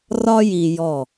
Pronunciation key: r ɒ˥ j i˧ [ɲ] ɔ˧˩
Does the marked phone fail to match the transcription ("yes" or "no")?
yes